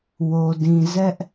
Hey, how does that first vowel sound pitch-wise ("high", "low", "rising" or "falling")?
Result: low